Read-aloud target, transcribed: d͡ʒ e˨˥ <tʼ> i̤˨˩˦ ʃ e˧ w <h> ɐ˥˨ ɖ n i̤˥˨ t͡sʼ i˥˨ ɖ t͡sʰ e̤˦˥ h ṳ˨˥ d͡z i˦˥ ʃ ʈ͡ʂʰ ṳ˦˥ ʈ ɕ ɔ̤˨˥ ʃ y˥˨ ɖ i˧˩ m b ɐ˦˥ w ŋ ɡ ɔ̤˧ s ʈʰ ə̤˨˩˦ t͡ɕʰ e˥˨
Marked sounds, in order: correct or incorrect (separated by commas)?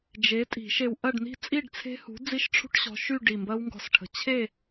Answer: correct, incorrect